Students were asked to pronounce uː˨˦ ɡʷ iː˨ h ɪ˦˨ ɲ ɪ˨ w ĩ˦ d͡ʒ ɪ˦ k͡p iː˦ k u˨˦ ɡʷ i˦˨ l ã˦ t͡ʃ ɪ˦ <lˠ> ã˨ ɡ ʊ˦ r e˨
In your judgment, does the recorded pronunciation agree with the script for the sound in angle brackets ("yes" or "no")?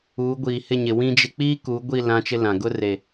no